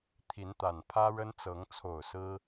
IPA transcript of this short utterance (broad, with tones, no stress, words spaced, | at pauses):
t̪ʰi˨˦nt̪a˨˩npʰä˦ ɻə˦nt͡sɤ˨˦ŋ t͡sʰo˨˩ʊ̯ sɹ̩˦